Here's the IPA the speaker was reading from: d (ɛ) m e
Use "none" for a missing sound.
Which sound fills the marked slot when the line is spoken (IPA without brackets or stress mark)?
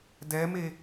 ɛ